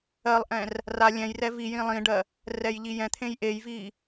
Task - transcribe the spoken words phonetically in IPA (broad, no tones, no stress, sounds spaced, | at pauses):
ɜ lˠ ʔ ɛ̃ r | r a lʲ ɛ̃ j r ɛ v i j ĩ lˠ ĩ ɖ ɜ | r ɛ j ʎ i j ɛ̃ t̪ʰ ẽ j ʔ e j v i